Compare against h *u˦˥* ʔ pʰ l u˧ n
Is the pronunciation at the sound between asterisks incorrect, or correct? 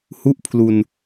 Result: correct